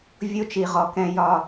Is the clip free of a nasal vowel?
no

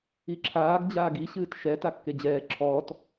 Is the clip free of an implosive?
yes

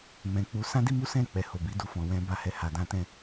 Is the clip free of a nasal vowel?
no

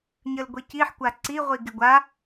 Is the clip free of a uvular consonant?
no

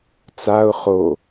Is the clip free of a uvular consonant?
no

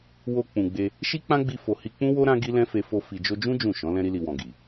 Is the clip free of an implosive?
yes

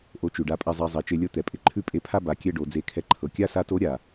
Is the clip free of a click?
no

